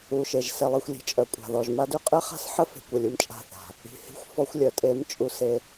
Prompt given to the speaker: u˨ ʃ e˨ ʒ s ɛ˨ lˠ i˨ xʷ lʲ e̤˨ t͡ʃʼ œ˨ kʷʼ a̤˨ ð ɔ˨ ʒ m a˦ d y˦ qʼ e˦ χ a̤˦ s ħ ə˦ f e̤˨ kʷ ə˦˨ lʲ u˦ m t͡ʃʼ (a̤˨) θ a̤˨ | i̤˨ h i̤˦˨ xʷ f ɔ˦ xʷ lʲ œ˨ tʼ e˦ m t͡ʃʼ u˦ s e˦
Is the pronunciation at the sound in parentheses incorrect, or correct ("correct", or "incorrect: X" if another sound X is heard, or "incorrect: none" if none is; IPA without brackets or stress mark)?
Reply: incorrect: a̤˦˨